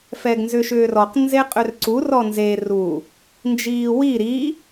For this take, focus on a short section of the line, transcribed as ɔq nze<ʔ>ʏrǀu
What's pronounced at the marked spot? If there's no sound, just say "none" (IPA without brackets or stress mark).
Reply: qʼ